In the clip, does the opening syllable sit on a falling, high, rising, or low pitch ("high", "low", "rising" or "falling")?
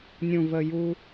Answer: low